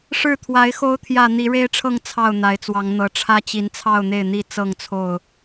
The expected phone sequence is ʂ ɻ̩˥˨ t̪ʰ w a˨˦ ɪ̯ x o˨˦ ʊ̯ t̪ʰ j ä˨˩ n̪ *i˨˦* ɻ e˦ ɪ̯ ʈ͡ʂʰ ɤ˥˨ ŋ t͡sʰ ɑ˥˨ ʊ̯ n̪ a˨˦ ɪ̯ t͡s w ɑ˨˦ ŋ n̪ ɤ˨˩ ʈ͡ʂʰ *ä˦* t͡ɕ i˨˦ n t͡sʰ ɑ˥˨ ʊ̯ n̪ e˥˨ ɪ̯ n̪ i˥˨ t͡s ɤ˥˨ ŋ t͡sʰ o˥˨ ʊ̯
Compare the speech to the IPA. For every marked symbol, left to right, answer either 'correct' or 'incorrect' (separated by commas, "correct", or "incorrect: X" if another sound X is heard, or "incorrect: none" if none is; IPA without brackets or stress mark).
correct, correct